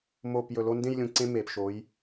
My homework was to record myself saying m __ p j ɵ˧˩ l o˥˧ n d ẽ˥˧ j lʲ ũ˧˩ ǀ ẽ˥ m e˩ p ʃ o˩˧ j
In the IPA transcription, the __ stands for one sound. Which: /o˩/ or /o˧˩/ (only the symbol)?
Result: o˧˩